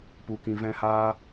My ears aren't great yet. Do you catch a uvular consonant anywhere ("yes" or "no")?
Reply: no